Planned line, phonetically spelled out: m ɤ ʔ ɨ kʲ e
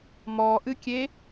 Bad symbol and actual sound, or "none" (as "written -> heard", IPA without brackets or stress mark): ɤ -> ɔ